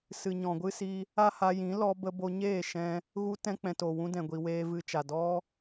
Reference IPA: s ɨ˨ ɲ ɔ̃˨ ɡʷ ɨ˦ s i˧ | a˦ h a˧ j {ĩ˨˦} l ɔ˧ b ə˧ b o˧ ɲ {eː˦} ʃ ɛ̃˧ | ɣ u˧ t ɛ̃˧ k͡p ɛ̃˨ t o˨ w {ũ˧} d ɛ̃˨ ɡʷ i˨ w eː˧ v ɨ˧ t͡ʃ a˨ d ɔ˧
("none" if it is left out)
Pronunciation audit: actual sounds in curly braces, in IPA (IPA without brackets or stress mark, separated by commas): ĩ˨˦, eː˦˨, ũ˧